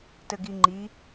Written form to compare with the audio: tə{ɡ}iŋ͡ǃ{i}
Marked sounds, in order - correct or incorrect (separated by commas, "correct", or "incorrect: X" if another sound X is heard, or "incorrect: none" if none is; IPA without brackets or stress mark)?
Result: correct, correct